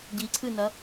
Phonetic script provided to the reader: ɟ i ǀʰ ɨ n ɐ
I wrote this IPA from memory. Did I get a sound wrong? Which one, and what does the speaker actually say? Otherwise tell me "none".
none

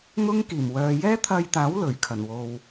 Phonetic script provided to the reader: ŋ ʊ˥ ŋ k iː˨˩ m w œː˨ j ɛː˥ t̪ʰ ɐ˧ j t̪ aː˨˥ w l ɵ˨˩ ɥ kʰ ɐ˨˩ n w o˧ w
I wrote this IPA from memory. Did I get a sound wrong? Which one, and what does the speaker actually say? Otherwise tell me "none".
none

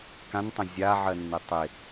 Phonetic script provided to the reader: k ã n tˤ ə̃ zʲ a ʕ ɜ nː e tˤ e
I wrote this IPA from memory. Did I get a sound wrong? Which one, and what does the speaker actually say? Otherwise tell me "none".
none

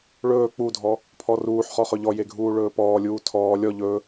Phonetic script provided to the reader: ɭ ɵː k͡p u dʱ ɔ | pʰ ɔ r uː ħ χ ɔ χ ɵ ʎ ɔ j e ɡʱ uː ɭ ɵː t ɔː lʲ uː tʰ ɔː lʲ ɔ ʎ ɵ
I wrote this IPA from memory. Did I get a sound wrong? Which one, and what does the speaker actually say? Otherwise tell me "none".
t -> p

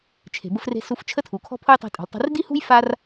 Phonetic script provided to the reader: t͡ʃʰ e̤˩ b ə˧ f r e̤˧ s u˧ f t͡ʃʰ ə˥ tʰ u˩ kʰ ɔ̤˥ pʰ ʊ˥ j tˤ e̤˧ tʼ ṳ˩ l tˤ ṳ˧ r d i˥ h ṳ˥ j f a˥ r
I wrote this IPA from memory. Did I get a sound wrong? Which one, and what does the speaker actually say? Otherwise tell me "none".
none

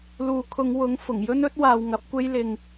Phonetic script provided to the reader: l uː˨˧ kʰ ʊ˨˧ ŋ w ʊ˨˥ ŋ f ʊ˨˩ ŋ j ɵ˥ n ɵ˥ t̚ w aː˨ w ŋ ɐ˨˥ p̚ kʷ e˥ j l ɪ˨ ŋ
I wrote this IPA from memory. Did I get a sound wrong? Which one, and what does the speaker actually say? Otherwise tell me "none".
none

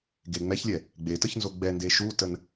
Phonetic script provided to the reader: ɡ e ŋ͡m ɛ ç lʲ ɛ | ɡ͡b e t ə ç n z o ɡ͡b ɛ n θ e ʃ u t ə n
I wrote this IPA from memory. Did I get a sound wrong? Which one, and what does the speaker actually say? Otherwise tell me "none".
θ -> d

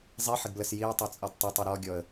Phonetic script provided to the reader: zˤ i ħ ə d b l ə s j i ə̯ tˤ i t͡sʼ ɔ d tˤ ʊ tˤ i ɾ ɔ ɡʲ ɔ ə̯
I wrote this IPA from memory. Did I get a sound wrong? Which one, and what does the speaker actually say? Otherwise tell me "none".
none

